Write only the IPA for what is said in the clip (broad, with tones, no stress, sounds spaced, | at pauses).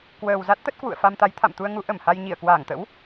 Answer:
k w əː˨˩ w z a˦˥ t̚ t̪ ə˦˥ t̚ k w ṵ˧˨ ə̯ f a˧ m t̪ a˨˦ j t̪ʰ a̰˧˨ m t̪ u˧ ə̯ ŋ u˨˦ ʔ ə˧˩ m h a˧ j ɲ i˧˩ ə̯ k w aː˧˩ ŋ t̪ ə̰˧˥ w